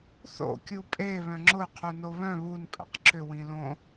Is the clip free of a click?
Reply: no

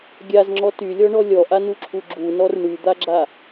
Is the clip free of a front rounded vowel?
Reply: no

